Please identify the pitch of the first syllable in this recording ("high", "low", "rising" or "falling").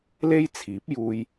high